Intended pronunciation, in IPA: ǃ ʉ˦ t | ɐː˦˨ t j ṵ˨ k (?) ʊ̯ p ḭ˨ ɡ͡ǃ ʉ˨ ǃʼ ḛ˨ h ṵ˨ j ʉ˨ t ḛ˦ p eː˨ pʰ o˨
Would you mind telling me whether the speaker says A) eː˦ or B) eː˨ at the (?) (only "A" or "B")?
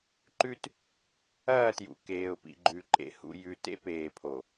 B